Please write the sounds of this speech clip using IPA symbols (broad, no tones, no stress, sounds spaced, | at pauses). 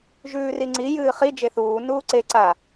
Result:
ʒ ʉː r i ŋ͡ǀ i j ɨː χ i d͡ʒ e θ uː n uː ǀ e ǀ a